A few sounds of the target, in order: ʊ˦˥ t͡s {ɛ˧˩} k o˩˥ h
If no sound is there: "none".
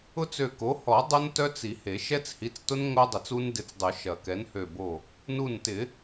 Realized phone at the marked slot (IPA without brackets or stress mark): ø˧˩